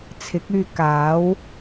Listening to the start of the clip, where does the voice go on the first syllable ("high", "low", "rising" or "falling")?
rising